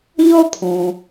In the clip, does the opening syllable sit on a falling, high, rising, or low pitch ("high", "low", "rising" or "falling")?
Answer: high